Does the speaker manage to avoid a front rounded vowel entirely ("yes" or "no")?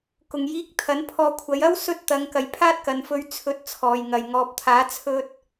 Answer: yes